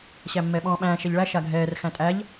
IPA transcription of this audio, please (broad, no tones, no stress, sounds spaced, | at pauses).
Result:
ɕ æ mː ɛ ɓ ɔ̃ː ɓ æ̃ː ʃ ɛ ʎ ɭ æ ʃ a ɡʱ ɛː r x æ̃ tʼ æ ʎ